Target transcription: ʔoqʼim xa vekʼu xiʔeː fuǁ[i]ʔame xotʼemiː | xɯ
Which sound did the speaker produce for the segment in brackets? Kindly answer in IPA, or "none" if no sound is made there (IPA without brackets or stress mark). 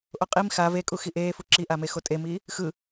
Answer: i